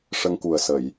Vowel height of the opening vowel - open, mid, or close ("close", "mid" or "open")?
mid